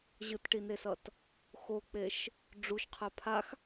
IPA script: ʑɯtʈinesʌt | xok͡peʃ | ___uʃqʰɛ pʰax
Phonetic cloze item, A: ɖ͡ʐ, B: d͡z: A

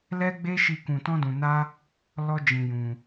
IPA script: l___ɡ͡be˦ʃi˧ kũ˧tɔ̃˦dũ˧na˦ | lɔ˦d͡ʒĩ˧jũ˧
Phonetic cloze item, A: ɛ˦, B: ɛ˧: A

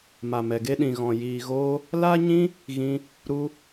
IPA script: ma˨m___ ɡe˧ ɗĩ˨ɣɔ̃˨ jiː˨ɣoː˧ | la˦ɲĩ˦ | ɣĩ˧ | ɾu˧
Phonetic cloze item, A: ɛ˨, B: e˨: A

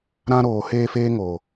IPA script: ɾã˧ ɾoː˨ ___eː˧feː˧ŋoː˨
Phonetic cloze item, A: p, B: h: B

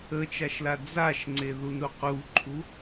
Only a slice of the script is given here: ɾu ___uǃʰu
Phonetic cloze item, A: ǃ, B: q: B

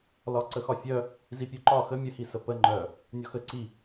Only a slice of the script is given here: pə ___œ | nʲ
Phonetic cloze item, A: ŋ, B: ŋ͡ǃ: B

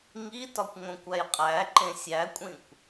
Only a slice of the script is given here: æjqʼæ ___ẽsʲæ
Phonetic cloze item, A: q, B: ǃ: B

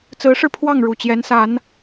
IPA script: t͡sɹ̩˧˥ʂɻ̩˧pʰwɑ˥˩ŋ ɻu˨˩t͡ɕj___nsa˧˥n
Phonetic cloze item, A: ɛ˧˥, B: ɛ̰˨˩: A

